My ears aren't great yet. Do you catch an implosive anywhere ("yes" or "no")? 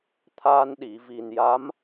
yes